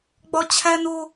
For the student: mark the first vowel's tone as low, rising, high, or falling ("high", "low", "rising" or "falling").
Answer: high